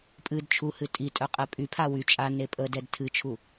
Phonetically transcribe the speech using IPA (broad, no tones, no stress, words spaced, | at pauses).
pʼɨd t͡ʃʰuhɨ tʼitʼœ qʼɛpʼypʰa wy t͡ʃʼa nepʼədɛd tʰɨt͡ʃʰu